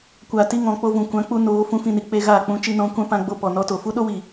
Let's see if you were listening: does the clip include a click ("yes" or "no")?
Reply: no